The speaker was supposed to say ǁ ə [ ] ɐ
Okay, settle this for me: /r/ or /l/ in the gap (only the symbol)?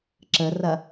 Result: r